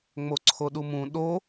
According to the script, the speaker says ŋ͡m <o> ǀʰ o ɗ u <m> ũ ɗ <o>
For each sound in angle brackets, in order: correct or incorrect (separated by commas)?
correct, correct, correct